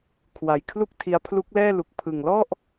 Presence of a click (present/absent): absent